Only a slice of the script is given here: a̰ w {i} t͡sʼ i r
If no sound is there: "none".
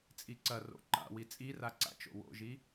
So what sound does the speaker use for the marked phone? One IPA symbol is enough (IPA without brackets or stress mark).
i